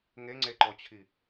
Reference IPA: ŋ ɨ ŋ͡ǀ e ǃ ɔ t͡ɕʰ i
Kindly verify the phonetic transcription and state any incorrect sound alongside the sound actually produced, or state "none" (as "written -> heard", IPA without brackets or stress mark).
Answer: ɨ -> e